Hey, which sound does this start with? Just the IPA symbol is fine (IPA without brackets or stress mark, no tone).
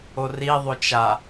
o